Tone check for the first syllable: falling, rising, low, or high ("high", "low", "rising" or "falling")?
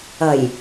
low